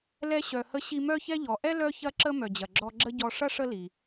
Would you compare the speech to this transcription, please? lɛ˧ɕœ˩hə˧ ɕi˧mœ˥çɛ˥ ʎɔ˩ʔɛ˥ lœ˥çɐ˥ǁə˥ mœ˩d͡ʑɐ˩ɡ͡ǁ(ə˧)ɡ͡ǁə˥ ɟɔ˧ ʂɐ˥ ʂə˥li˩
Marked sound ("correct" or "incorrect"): incorrect